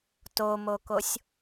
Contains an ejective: no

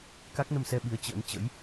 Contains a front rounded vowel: no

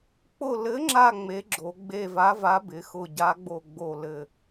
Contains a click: yes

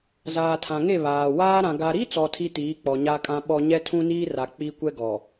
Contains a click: no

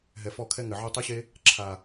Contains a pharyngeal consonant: yes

